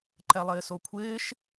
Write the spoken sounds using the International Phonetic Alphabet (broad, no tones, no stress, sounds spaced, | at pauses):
ǃ ɛ lˠ ɪː s o kʷʰ ɪː ʃ